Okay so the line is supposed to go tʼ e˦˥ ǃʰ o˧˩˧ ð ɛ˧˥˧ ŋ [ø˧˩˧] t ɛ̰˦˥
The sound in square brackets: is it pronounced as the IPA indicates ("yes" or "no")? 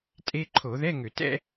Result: yes